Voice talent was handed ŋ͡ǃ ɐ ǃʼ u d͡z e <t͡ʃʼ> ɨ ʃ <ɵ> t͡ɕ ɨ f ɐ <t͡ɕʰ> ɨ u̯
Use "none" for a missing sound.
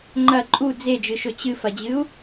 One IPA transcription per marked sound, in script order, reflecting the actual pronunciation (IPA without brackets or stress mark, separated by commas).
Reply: d͡ʒ, ɵ, d͡ʑ